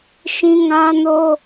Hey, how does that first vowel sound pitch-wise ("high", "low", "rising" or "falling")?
high